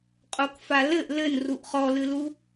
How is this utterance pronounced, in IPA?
qʼ o k f a l ɘ ʔ l ɘ n r u ʔ χ ɔ l ɨ l u

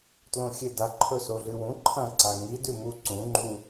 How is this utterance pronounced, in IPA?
t l õ xʲ e d a ǃʰ ɵ s o ɮ ɨ w ũ ǃʰ ɐ̃ ǀ a ŋ i d ʉ m u ǀ ũ ŋ͡ǃ u

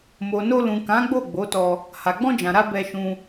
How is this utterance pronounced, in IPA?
m o˨ n o˧ l ũ˨ k ã˨˦ ɡ͡b o˦˨ ɡ͡b o˨˦ t ɔ˧ | h a˨ ɡ͡b ɔ̃˧ d͡ʒ ã˨ ɾ a˧ b ɛ˧ ʃ ũ˧

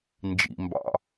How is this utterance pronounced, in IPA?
n d͡ʒ ḭ m b ɑ̰

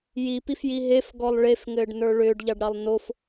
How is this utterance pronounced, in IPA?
j i p i f j i ɦ e f ɡ ɔ lˠ ɭ e f ŋ ɘː ɖ n ə˞ ɭ ʏː ɖ ʎ ɑ ɖ ɾ ɑ lˠ n o f

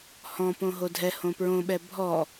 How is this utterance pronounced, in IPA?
h ɔ̃ p õ ɦ o dʱ ɛ h õ p ɹ õ ɓ ɛ bʱ ɔ

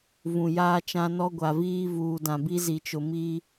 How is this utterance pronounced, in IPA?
v ũ˨ j aː˦ t͡ʃ ã˦ n ɔ˦ ɡʷ a˨ v iː˦ v uː˨ d ã˨ b i˦ z i˨ t͡ʃ ʊ˨ m iː˦

